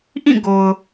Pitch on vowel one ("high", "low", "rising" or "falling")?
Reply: falling